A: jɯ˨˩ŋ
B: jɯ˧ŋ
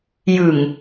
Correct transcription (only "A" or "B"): A